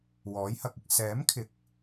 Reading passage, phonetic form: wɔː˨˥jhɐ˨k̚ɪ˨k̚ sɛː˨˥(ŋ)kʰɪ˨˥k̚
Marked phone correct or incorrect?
incorrect